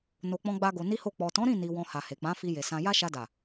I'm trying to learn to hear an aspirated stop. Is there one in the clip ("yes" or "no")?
no